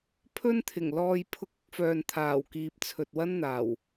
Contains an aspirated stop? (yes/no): yes